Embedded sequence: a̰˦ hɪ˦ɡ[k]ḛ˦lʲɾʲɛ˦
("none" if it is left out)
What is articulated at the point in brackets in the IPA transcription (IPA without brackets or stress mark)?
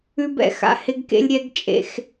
k